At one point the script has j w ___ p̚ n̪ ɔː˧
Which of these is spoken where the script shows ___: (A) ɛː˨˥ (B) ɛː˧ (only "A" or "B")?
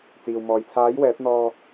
A